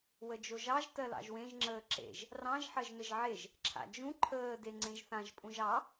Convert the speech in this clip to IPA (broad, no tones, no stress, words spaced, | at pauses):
wəd͡ʒoʒɑʒ tɜlɑ̰ʒwẽʒ ŋ͡ǁəːǁḛʒ | rɑ̃ʒ ħɜʒnəʒʕeʒ | ǁʰa̰d͡ʒũ ǃʰəː deŋ͡ǀẽʒθãʒ pʼũʒɑ